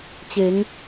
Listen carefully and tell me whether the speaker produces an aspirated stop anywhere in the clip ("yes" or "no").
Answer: no